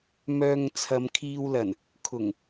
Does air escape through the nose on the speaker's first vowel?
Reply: no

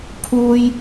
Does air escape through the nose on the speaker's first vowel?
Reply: no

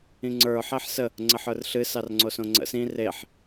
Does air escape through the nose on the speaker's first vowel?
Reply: yes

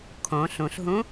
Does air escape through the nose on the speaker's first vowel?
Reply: yes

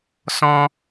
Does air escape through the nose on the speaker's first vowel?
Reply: yes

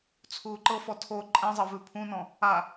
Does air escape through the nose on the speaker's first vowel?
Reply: no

